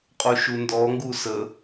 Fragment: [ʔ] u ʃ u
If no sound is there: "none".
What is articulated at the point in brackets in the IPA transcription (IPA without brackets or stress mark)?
qʼ